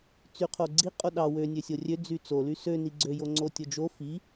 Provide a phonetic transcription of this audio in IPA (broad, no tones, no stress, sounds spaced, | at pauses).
t͡s y qʰ o ɡ͡ǀ i qʼ o ɗ ɑ w ø nʲ ø sʲ o rʲ ø d͡z y t͡s o l y s ø n i ɡ͡ǀ ø j o ŋ͡ǀ o tʲ o d͡ʒ o f i